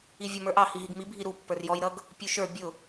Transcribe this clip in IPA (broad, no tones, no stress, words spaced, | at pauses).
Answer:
ivʲɔmə˞ʔɑ hiɦiɡmi bʱiɾu pːə˞rjɔj ɾʌɡ | pʲuʃə˞ bʲʊ